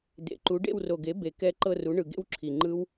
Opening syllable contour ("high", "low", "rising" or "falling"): rising